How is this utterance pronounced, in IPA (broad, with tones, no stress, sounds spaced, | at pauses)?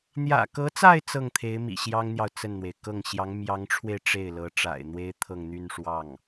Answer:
n̪ j ä̰˨˩ k ɤ˧˥ t͡s a˥˧ ɪ̯ t͡s ɤ˥˩ ŋ t̪ʰ e˧˥ ɪ̯ m ḭ˨˩ ɕ j ɑ˥ ŋ n̪ j ɑ˨ ʊ̯ t͡s ə˥˩ n n̪ w e˩ ɪ̯ k ɤ˥˩ ŋ ɕ j ɑ˧˥ ŋ m j ɑ˧˥ ŋ ʈ͡ʂʰ w e˧ ɪ̯ ʈ͡ʂ e˥˩ ɪ̯ l ɤ˧˥ ʈ͡ʂ a̰˨˩ ɪ̯ n̪ w e˥ ɪ̯ t̪ʰ ɤ˥˧ ŋ n̪ y˥˧ n ʂ w ɑ˥˩ ŋ